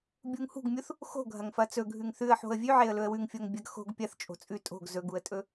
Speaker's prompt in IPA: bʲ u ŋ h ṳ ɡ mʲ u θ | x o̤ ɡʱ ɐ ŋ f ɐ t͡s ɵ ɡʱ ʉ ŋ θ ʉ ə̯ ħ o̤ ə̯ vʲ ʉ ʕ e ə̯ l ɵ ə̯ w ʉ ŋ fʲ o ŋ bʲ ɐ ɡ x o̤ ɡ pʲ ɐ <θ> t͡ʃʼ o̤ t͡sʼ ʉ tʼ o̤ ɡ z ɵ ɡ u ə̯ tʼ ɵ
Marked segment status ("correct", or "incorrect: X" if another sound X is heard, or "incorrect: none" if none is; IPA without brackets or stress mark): correct